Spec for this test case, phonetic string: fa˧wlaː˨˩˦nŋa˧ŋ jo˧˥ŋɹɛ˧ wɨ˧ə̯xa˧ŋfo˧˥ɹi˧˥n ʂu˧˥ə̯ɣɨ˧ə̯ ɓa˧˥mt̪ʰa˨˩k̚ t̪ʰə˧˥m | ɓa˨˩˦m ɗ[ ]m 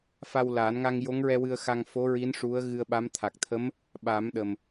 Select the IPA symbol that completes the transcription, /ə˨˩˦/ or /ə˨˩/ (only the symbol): ə˨˩